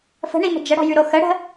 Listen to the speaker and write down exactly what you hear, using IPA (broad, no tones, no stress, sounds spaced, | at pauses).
f ə̤ ɳ i m ə̤ d͡ʒ ə ɽ ɔ̤ j ʉ ɾ o x ə ɽ ə̤